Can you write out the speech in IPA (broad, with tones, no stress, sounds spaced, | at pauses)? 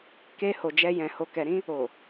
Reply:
k e˧ h o˨ d͡ʒ ɛ˧ j ɛ̃˨ h o˨ k ɛ˨ ɾ ĩ˧ | o˨